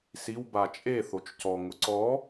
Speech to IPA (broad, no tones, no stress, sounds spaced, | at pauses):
s i w b a t͡ʃʼ e θ o t͡ʃ c ɔ ŋ ʊ ǀ ɔ